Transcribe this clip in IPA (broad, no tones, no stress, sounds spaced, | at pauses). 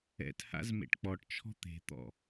ɛ̰ t h a̰ z m ḛ ʈ k͡p ɔ ʈ t͡ʃʰ ɔ̤ t̪ e̤ t̪ ɔ̰